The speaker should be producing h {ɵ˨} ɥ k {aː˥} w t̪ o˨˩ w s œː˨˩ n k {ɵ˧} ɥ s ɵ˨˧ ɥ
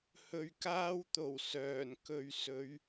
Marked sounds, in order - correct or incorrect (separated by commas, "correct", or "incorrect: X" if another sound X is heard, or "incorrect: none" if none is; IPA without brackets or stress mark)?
incorrect: ɵ˧, correct, incorrect: ɵ˨